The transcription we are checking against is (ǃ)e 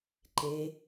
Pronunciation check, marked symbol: correct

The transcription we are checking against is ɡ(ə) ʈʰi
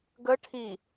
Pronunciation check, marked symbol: correct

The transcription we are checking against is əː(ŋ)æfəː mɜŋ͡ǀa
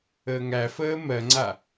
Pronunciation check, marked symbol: correct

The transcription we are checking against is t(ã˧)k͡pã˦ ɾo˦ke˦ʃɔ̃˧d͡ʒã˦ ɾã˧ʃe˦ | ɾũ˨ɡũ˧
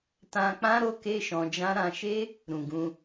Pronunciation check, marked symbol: correct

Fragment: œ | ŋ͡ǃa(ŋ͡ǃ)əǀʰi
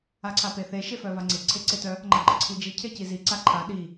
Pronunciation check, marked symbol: incorrect: ɡ͡ǃ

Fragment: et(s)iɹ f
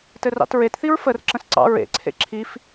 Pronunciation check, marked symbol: incorrect: θ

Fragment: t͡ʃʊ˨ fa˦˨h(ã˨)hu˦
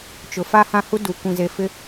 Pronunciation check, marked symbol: incorrect: ã˦˨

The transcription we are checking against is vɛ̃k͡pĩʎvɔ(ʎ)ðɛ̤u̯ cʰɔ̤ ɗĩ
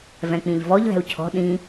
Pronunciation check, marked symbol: correct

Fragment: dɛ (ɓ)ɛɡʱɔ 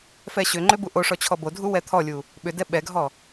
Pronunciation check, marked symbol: correct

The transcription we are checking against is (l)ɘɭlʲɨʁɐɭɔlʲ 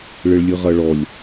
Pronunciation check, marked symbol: incorrect: ɭ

